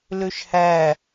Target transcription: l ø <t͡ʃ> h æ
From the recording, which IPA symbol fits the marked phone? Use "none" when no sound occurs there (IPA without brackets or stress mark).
ʃ